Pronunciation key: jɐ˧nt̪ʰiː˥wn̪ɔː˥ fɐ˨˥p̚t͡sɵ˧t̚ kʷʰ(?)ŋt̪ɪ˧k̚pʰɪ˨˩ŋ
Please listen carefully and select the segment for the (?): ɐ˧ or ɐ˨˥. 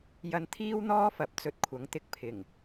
ɐ˨˥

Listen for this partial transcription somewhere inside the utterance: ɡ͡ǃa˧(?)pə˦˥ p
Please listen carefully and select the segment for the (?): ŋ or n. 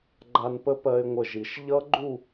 n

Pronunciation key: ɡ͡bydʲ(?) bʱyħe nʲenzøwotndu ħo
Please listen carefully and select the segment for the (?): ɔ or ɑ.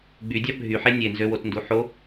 ɑ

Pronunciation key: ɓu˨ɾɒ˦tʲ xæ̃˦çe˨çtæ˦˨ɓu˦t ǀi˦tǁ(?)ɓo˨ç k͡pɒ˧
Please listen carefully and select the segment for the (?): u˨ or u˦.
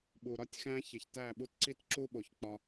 u˦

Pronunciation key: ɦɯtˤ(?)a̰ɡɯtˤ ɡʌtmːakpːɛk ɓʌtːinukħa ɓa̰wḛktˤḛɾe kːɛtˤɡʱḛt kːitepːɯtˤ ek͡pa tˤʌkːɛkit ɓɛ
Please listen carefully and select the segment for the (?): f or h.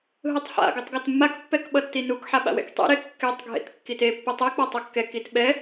h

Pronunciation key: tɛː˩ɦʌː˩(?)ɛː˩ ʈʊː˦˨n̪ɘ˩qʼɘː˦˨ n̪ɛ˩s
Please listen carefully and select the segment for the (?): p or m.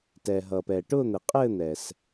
p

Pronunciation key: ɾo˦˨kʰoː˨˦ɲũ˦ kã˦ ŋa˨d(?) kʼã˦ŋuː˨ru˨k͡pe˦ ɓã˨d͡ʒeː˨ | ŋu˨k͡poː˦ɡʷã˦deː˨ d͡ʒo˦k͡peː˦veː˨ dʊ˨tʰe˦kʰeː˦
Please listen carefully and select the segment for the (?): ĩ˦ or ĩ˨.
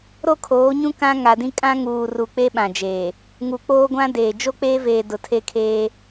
ĩ˦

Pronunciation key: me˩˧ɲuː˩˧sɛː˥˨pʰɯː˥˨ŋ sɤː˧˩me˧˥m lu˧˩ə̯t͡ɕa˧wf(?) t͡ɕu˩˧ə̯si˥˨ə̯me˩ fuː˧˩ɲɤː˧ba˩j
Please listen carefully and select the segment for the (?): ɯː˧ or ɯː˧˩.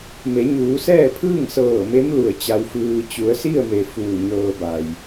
ɯː˧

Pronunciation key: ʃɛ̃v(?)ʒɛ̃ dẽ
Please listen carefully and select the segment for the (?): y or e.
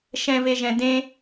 e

